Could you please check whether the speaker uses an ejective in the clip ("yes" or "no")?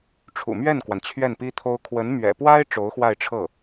no